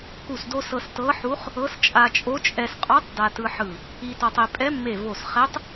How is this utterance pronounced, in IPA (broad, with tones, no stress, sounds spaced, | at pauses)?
k u˧˩ s d o˧ s ɤ˧ s t ɤ˧˥ ħ u˧˥ χ | ɤ˧˥ s t͡ʃʼ a˧ t͡ʃʼ o˧˥ t͡ʃʼ ɛ˧ s qʼ ɔ˧˥ tˤ d a˧ t ɯ˧ ħ ɯ˧˩ | i˧ t ɔ˧ tˤ e˧ pʼ ɛ˧˥ mː e˧˩ v o˧˩ s χ ɛ˧˥ tˤ